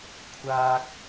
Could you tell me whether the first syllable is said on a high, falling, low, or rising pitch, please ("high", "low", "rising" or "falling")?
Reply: low